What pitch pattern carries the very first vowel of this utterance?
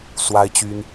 high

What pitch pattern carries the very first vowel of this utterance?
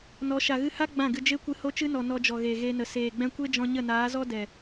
rising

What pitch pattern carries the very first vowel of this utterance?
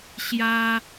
high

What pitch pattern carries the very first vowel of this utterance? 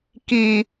low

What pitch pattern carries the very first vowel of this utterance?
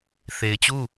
low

